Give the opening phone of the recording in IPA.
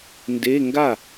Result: n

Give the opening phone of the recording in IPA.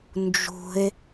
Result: n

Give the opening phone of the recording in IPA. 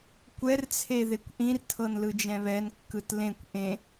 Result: kʷ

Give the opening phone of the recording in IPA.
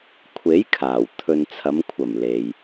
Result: kʷʰ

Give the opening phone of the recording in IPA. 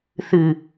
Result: θ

